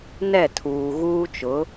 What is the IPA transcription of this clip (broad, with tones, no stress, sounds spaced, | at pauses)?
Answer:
n ɛ˦˨ tʰ uː˨ ɣ uː˦ t͡ʃ ʊ˨˦